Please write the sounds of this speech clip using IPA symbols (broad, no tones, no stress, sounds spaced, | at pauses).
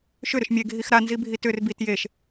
ʃ ʏ ɾ ʏ ʃ mʲ e ɡʱ i x ɾ a n z i bʱ i t ʏ r b i t j e ʃ